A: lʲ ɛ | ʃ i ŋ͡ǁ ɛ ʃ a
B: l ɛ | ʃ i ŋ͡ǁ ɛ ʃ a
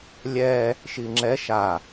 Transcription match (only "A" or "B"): A